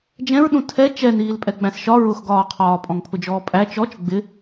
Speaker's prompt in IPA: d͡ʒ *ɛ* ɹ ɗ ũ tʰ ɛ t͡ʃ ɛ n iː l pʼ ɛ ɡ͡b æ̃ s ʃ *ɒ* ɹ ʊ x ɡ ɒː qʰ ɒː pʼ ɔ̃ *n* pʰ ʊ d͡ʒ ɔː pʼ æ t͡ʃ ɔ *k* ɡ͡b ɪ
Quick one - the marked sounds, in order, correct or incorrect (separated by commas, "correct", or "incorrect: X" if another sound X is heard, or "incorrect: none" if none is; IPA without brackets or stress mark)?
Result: incorrect: ɛ̃, correct, incorrect: ŋ, incorrect: t͡ʃ